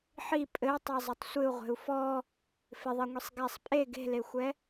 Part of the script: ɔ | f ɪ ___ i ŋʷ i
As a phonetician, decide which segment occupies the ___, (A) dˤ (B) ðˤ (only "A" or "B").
B